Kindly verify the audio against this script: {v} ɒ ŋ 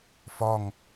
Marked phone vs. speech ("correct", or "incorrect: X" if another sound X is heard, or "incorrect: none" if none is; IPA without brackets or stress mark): incorrect: f